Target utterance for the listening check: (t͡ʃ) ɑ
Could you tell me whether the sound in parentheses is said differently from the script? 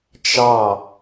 no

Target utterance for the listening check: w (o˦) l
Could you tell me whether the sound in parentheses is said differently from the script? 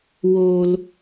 no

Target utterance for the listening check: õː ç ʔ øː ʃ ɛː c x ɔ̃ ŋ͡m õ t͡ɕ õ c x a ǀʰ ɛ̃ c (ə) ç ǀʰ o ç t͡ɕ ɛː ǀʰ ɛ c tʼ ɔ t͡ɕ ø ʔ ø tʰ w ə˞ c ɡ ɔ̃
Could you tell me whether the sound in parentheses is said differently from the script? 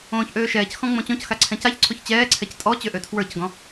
yes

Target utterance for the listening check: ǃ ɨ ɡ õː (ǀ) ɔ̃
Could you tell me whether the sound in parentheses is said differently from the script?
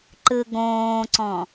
no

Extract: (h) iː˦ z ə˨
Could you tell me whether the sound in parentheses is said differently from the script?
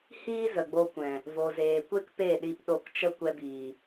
no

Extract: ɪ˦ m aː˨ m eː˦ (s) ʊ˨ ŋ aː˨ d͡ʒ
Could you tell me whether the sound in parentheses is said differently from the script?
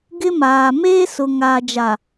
no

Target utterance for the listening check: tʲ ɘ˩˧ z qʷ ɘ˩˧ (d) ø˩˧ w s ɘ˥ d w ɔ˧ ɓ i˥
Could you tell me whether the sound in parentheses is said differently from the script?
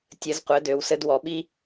no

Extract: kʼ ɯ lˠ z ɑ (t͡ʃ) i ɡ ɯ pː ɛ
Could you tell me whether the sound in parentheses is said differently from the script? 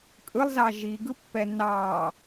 yes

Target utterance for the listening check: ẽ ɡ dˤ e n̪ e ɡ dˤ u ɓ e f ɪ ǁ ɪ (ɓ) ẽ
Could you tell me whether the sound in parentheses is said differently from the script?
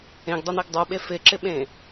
no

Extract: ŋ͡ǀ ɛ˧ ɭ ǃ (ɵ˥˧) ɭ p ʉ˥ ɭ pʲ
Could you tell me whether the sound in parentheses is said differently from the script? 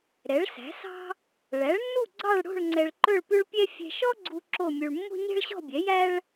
no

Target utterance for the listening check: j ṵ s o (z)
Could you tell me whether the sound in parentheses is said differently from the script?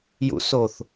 yes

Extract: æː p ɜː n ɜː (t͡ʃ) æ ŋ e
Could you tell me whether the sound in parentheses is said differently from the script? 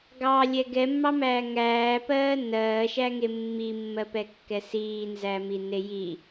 yes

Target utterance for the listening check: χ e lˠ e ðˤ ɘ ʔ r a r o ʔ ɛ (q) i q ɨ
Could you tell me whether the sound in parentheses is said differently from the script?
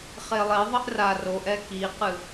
yes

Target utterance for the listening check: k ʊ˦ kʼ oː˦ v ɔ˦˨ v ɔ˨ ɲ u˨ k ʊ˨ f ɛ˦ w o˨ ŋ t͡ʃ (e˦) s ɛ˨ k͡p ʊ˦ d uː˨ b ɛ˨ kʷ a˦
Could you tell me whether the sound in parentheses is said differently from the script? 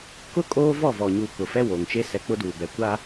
no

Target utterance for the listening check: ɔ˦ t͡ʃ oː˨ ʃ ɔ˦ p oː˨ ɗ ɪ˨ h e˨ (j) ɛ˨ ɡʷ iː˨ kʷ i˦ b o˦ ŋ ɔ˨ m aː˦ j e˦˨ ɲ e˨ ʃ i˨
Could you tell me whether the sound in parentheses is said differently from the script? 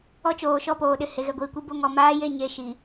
yes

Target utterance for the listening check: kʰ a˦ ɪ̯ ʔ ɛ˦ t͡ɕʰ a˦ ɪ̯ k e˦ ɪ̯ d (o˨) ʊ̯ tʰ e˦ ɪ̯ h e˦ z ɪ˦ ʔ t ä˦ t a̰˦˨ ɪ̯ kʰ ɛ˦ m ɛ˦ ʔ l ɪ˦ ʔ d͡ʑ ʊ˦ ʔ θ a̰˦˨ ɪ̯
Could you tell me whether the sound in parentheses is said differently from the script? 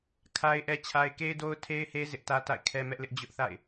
yes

